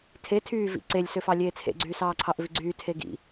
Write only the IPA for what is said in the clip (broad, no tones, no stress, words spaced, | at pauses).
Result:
tʰe tʰyːvḭ ǀelʲsøfɑ lʲeːt͡sʰḛɡ͡ǀyː sɑːǀʰɑʔviɡ͡ǀyː tʰeɡḭ